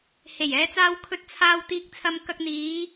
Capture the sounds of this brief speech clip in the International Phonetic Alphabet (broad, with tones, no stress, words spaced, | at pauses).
he˨˩jɛː˨˧t͡saː˧w kʰɵ˨t̚t͡sʰaː˨w t̪iː˨k̚t͡sʰɐ˨mkɐ˨k̚ n̪iː˨˧